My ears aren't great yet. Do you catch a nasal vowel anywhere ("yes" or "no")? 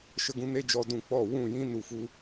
yes